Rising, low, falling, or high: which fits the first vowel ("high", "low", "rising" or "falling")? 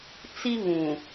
high